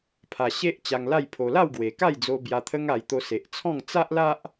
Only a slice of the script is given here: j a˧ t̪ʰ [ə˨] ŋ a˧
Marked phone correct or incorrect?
incorrect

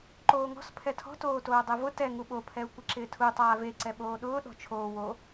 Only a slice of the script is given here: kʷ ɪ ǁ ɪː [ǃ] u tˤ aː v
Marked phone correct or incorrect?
incorrect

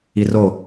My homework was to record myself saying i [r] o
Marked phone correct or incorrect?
correct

